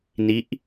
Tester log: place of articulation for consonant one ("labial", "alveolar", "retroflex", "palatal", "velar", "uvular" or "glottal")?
alveolar